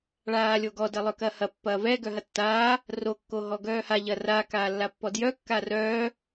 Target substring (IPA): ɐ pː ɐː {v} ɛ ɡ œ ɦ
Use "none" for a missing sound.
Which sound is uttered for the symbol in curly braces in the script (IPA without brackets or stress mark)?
v